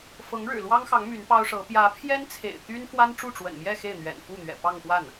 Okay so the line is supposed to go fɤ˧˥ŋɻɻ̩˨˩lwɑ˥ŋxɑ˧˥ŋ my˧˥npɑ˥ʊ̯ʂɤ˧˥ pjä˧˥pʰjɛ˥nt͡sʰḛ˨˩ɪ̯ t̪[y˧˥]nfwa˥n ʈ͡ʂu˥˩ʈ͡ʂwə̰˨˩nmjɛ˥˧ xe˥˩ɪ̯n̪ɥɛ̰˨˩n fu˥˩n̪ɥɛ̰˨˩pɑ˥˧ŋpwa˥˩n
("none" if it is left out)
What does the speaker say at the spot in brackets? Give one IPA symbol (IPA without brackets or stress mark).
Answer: y˥